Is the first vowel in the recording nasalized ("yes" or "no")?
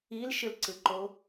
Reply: no